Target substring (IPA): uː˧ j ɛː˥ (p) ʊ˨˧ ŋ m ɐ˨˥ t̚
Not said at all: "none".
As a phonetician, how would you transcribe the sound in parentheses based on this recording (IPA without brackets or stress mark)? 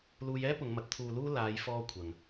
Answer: p